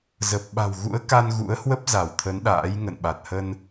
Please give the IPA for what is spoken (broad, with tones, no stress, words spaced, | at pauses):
zə˨˩p̚ɓa̤˨˩wɣṵ˧˥ə̯ ka˧nɣṵ˧˥ə̯hwə˦˥p̚ za˧˩wt̪ʰə˨˦nɗa̰ː˧˥j ŋə̰˧˨nɓa˨˩t̚hə˧n